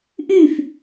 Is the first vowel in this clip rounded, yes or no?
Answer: yes